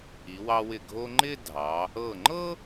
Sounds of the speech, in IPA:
i˩˧wɑ˧wɪ˧˩ ɡʱo˧ŋ͡ǃɪ˥˧ dʱɑ˩˧ | ɤ˧˩ŋ͡ǃɤ˥

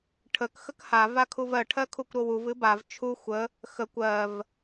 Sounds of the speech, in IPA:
ʈʰək xəkha vakʰuvɜ ʈʰɜkʰukʷɾowuv ɨbav t͡ʃʰu xʷə | xəkʷ ɜv

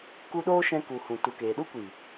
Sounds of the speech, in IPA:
ku˧ɗoː˦ ʃɛ̃˧ku˨ hũ˨tu˨ keː˨ɗu˦kʷiː˨

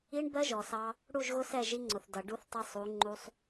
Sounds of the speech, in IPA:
i˦ɳbɜ˦ʒɔ˨sɑ˦ | ɽu˦˨ʒɣʊ˦sɛ˦˨ ʒi˦ŋ͡ǀʊ˨θdʌ˨ ɖu˦θtˤɛ˦sˤ u˨˦ŋ͡ǃu˦sˤ

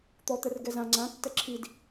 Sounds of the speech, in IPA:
t̪ɔt̪ɛr ɡɛzã ŋ͡ǀãtːɛ ǁʰid

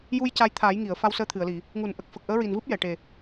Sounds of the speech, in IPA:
ju˧j ca˧jt̪ʰaː˨˩˦j ŋi˨˩˨ə̯ fa˧wsəː˧t̪ʰɨ˨˩˨ə̯li˨˩˨ | ŋu˨˩˨nʔə˨˩k̚ fə˨˩k̚ʔəː˧˥ɹi˨˩nvɨ˦˥p̚ jɛ˨˩˨ʈe˨˩

